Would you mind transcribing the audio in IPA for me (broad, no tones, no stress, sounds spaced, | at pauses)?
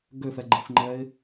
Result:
ɡ ø f ɛ ɡ͡ǃ i s ŋ͡ǃ ɛ ɪ̯